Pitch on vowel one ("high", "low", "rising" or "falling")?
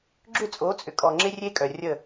falling